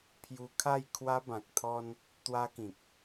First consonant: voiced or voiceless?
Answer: voiceless